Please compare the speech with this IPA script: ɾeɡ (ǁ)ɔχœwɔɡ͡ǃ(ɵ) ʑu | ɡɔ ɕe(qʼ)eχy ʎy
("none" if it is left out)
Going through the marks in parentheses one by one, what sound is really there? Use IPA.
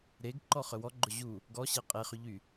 ǃ, ɵ, qʼ

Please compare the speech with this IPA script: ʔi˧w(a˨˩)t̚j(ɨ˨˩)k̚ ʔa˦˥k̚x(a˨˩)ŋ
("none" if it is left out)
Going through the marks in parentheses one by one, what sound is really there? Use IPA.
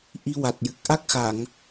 a˨˩, ɨ˨˩, a˨˩˨

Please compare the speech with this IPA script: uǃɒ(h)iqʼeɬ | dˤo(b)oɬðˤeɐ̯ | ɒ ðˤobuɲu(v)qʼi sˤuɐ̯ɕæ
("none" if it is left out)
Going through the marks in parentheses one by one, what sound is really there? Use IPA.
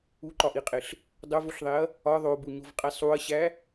ʔ, v, v

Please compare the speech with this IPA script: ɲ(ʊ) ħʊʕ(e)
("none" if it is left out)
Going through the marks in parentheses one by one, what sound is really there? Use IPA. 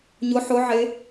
ʊ, e

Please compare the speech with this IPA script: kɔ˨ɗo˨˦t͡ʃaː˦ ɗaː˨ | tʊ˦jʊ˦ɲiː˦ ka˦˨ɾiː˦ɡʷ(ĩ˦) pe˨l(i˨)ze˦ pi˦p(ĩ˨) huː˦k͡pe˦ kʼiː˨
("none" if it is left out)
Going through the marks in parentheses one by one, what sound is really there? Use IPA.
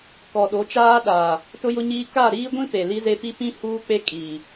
ĩ˦, i˦, ĩ˦

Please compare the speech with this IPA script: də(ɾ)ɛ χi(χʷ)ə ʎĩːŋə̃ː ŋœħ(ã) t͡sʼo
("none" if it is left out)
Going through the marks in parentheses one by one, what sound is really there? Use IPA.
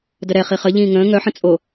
ɾ, χ, ə̃

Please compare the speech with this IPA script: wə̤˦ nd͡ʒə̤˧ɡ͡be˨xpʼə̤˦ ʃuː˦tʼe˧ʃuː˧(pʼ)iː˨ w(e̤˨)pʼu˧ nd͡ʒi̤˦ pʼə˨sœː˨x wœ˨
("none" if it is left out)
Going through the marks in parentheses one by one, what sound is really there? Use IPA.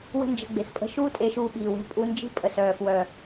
ɓ, e̤˧

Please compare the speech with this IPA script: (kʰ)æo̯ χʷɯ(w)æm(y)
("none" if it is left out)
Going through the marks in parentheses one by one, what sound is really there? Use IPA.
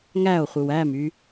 ŋ, w, y

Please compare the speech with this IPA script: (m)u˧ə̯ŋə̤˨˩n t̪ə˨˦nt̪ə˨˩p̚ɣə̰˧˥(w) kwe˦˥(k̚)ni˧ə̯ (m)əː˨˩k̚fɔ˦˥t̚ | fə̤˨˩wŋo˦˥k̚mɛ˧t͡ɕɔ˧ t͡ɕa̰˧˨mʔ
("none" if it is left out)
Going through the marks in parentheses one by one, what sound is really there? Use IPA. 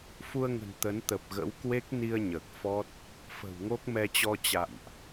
f, w, k̚, ɲ

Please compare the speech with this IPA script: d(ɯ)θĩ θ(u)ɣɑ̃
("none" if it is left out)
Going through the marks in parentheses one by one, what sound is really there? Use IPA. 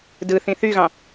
ɯ, y

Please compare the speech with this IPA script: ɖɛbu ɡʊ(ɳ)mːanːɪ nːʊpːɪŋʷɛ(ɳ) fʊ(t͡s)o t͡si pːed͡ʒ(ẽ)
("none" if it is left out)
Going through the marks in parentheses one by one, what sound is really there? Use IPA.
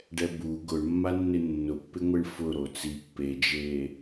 ɳ, ɳ, ɾ, e

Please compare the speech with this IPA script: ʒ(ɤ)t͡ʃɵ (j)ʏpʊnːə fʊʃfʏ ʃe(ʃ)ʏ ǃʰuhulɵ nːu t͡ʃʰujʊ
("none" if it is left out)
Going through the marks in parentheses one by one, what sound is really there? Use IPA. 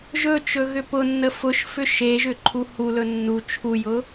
ɵ, ɣ, ʒ

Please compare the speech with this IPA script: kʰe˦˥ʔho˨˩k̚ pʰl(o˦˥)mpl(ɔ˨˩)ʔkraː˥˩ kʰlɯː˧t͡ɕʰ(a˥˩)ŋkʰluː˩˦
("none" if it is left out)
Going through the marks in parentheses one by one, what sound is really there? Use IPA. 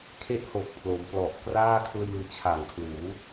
o˩˦, ɔ˨˩, a˨˩

